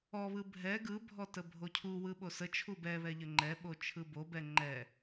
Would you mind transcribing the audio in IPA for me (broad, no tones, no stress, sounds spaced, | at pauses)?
ɔ β ɯ bʱ ɛ ɡ ɯ bʱ ɔ t ə bʱ o cʰ u w ɯ ɓ o s ə t͡ʃʰ u b ɛ β ɛ ʎ ə ŋ͡ǃ ɛ ɓ o t͡ʃʰ ɯ b o b ɛ ŋ͡ǃ ɛ